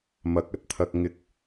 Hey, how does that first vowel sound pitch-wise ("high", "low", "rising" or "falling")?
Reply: rising